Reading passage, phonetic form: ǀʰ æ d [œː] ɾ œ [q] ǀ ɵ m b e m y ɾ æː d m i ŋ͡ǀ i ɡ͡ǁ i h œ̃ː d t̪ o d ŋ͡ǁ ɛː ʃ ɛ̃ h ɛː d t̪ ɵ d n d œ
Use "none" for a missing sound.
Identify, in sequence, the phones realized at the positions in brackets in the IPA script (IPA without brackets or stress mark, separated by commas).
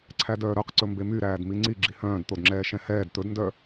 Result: œː, q